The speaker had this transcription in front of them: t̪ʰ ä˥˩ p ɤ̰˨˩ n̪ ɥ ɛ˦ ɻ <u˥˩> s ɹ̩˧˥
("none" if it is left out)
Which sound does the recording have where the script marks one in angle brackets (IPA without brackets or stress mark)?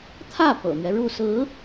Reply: u˥˩